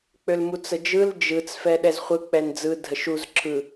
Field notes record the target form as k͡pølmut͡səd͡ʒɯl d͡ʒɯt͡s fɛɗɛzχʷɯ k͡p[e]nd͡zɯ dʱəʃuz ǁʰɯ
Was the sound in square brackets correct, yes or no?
no